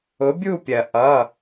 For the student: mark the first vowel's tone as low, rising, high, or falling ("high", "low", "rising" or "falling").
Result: rising